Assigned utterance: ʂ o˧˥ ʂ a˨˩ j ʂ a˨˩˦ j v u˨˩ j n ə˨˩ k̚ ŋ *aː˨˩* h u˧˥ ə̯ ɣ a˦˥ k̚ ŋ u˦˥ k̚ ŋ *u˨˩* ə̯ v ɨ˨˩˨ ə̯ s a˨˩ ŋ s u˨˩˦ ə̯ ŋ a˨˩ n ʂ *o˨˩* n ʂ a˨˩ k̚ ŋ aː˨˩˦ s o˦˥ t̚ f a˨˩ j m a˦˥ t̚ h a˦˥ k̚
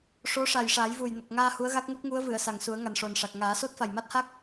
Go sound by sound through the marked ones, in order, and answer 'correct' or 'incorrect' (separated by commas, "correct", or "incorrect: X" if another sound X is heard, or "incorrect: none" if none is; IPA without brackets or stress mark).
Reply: incorrect: aː˧, incorrect: u˧˥, correct